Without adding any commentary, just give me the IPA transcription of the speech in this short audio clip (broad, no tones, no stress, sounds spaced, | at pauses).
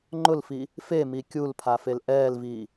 ŋ͡ǃ ʊ l f i | f e m i kʲ u l pʰ a f e l ʔ ɛː l v iː